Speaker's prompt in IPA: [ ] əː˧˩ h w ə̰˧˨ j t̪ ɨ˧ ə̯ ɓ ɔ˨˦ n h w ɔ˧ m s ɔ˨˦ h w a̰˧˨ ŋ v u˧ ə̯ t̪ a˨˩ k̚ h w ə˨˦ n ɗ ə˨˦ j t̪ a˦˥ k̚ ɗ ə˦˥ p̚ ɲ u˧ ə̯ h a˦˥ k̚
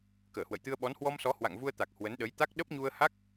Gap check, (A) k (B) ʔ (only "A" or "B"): A